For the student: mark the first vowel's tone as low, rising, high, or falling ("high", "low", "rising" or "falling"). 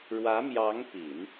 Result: rising